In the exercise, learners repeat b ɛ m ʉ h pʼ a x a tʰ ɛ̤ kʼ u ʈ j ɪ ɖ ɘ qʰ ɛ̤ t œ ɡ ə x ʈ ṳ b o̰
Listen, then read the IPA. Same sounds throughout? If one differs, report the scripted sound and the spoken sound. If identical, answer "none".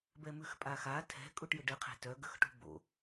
h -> x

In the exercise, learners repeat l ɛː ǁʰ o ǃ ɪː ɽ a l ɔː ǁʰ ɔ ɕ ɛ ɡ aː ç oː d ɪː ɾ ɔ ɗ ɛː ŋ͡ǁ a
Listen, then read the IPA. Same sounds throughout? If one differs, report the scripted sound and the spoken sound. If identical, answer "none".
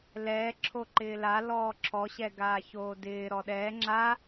ɽ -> l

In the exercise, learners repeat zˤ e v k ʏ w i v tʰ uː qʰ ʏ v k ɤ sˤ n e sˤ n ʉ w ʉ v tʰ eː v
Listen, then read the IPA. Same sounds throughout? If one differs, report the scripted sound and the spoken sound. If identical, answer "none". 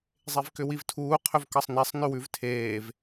none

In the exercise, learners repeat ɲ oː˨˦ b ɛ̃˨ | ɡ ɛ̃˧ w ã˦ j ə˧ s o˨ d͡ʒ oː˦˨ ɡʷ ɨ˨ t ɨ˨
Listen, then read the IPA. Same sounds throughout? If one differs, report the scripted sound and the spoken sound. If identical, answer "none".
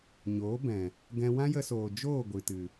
o˨ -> oː˨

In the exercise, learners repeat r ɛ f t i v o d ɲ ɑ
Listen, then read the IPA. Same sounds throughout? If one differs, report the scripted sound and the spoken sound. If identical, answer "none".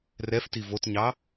d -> t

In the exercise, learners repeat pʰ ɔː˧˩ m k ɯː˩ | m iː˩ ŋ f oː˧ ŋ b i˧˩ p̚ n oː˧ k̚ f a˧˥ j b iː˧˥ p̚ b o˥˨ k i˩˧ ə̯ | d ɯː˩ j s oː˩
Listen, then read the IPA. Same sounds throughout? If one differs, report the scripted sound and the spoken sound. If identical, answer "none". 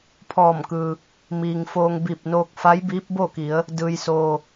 none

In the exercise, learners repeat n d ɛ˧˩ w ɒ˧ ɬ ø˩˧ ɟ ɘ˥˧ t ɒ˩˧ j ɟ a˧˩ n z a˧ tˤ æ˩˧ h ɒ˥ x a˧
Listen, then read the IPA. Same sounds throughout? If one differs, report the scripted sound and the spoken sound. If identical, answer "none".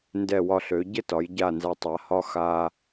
æ˩˧ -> a˩˧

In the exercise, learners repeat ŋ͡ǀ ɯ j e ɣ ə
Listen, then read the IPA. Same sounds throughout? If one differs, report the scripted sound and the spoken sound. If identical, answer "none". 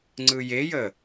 ɣ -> j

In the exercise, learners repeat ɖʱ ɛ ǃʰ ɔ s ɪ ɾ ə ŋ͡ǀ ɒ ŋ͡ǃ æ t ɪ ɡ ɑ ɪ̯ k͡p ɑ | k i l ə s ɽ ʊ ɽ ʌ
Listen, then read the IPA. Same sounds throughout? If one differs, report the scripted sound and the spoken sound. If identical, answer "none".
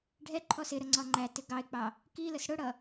none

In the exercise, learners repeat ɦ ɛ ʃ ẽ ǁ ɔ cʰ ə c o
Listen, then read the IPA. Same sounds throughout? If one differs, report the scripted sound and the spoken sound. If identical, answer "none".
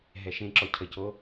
none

